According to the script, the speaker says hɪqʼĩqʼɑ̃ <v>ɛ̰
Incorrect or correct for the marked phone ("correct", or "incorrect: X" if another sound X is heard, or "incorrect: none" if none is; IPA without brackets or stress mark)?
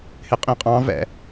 correct